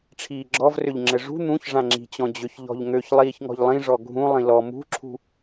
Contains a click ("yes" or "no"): yes